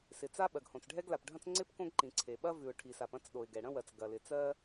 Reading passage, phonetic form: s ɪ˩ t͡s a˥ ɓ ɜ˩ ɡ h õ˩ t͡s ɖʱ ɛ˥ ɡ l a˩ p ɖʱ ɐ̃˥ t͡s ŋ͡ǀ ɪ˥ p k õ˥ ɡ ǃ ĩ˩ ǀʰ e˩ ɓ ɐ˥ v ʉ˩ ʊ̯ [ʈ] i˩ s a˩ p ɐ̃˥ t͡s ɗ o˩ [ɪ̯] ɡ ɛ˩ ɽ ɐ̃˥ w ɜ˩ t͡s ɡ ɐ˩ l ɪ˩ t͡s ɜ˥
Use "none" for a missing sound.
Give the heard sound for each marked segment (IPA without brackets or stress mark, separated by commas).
ʈʰ, ɪ̯